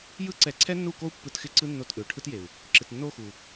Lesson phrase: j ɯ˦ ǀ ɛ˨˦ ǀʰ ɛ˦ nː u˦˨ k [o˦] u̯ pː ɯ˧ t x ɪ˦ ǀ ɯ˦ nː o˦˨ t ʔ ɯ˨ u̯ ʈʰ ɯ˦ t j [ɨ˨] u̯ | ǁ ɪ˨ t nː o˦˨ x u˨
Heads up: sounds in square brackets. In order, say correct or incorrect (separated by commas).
correct, incorrect